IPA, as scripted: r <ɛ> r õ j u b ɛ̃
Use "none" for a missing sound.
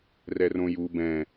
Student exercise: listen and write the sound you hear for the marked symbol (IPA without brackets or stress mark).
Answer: ɛ